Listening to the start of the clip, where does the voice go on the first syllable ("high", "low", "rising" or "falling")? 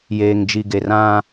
low